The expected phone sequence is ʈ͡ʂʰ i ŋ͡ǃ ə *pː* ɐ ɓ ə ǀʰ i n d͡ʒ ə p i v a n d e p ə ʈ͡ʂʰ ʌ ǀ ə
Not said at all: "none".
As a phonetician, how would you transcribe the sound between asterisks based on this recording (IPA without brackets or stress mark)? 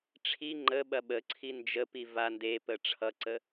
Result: ɓ